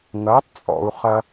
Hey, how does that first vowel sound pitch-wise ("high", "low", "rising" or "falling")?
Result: rising